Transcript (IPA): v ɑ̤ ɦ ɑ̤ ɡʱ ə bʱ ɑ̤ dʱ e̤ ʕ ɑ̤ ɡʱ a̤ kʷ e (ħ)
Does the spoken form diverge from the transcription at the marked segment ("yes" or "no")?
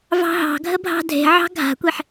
no